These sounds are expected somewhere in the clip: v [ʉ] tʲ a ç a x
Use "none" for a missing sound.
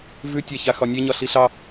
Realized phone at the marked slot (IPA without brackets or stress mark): ʉ